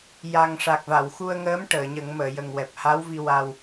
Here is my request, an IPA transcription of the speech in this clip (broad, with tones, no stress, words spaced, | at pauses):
ja˨˩ŋʂa˨˩k̚va˨˩˨w xu˧ə̯ŋəː˧˥m ʈəː˨˩˨ɲə˨˩˦ŋməː˨˩˨ jə˨˩ŋwɛ˨˩p̚ha˧˥wvi˧ wa˧w